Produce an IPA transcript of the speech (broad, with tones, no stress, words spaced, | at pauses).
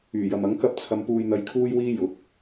yː˨˩jɐ˨mɐ˨˥ŋ kɐ˥p̚t͡sʰɐ˧m puː˧jn̪ɐ˧jkʰuː˥j wiː˥jʊ˨˥k̚